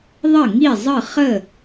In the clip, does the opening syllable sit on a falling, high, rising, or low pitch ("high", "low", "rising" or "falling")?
falling